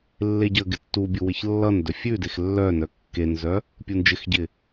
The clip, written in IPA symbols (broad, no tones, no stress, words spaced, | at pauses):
lːeɟəɡɪ tːubʲu wɪçlːʌndœ fʲʉ dexlːœnœ kːenzœ | pʲund͡ʒɪxɟɪ